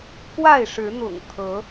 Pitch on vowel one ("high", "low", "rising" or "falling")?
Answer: falling